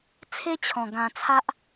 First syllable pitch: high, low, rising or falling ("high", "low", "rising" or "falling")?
high